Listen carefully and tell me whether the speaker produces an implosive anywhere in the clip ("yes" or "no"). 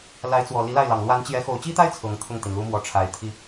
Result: no